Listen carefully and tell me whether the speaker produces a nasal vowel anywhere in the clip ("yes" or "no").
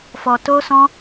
yes